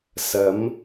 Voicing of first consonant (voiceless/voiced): voiceless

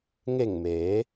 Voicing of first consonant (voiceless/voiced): voiced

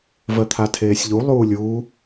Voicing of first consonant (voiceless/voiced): voiced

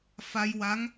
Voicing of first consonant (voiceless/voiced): voiceless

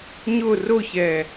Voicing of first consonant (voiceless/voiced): voiced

